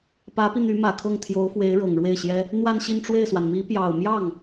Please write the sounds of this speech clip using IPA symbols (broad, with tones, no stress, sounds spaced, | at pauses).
p ä˧˥ p i˧ n̪ y˧˥ m ä˨˩ kʰ ɤ˥˩ ŋ t̪ʰ j o˧˥ ʊ̯ f w e˧˥ ɪ̯ ɻ ɤ˨˩ ŋ ɻ w e˥˩ ɪ̯ ɕ j ɛ˥ | n̪ w a˥˧ n ɕ i˥˧ n ʈ͡ʂ w e˥˩ ɪ̯ s w a˩ n m i˧˥ p j ɑ˨˩ ʊ̯ m j ɑ˥˩ ŋ